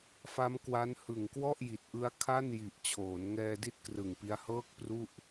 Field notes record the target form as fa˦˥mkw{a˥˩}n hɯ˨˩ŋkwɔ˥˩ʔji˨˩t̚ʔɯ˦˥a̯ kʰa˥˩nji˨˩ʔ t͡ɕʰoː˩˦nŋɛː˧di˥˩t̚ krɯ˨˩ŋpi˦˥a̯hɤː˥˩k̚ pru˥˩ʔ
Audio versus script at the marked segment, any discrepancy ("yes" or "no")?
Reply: yes